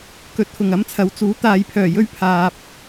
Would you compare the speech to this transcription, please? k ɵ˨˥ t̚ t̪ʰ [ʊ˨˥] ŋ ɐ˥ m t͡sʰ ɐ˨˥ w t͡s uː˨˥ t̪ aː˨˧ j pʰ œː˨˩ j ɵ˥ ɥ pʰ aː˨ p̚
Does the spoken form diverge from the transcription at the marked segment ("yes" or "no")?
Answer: yes